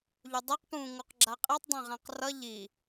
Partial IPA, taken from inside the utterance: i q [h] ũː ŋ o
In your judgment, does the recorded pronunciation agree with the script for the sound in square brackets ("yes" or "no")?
no